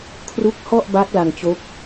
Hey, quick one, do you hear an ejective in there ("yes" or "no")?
no